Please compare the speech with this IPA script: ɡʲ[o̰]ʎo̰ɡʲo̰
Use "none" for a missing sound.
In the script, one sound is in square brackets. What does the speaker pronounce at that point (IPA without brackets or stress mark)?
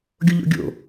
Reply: o